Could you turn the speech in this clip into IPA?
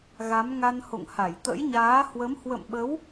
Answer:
ɣa˨˦mŋa˧nho̰˧˨ŋ ha˧˩jt̪ə̰˧˥jɲaː˨˦ hwə˨˦m hwə̰˧˨mɓə˨˦w

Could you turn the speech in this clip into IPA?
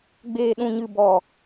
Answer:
ɡ͡beː˨ɗũ˨ɲɨ˨ bɔ˨

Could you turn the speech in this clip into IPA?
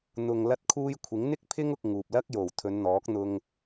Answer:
n̪ʊ˨ŋ lɐ˧t̚kʰuː˧jkʷʰɪ˨˥ŋ n̪ɪ˥k̚pʰɪ˥ŋ ʊ˧k̚ŋuː˨p̚lɐ˥k̚ jo˨˩w t̪ʰɵ˨˧nn̪ɔː˨˥k̚n̪ʊ˧ŋ

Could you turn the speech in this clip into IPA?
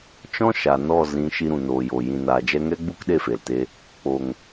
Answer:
t͡ʃɔ̃˦ ʃa˨nɔ˦˨ zĩ˨˦ ʃi˧ɾũ˨ noː˨jo˨ jĩ˨naː˨d͡ʒɛ˧ ŋɛ˦ɡ͡bu˦k ɗe˦˨fe˨lte˧ | k͡po˨ŋ

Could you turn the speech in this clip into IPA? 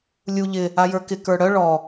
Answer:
lʲu ʎɪ | ajə˞kɪ kə˞ɽœ ɭɔ

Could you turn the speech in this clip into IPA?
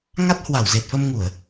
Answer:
ŋa˦˥t̚hwa˧˩wze˨˩t̚fə˧m ŋu˧˩˨ə̯

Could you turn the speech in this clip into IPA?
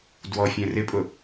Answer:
dwɔfʲɛ̃ rɪpʼʊ

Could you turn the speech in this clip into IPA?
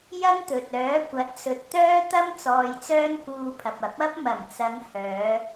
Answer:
jɐ˥ŋt̪ɵ˨t̚ œː˨˥kʷɐ˨˥t̚sɵ˨t̚ t̪œː˥t̪ɐ˥m t͡sɔː˧jt͡sœː˥nkuː˧pʰɐ˨p̚ ɐ˨˥p̚ɐ˥p̚ mɐ˨˩mt͡sɐ˨˧ŋ hœː˨˧

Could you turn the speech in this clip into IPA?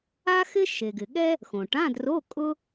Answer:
a˥xɪ˥ ʃe˩ɡɪ˩ɠɛ˥ | xõ˩ʈã˧˥˧dro˧˥˧ kʼʊ˥

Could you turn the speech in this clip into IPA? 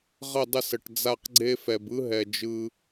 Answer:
ʁə˦˨dˤə˦˨sə˨ʈ d͡za˦˨qɡ͡ǀe˦fɛ˨b ɯ˦ɦɛ˨d͡ʒɯ˧

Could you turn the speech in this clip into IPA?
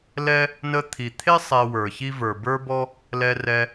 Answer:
lɛ˥ | nə˧ t̪ʰi˩t̪ʰe˥ sˤɛ˧wə˞˩çi˥ və˞˩bə˞˥bɔ˥ | lɛ˧rɛ˧

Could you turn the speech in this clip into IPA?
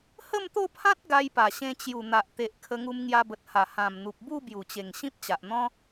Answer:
hə˥˧mt̪o˥˧pʰã˦t̚ ɡa˧jpa˨˩ɕẽ˧ t͡ɕju˨˩n̪a˨ʔ t̪e˨ʔkʰə˧ŋu˧m ŋja˧bə˨t̚ha˨˩ hã˨˩mn̪u˨p̚bu˥˧ bju˨˩t͡ɕe˨˩ŋ ɕĩ˦p̚t͡ɕa˨ʔn̪ɔ̃˦

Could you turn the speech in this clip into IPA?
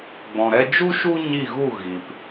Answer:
ɡ͡bɔ̃˨ɾɛ˧ d͡ʒu˦ ʃu˦ɲi˦˨ɣu˦˨ ɣi˨p

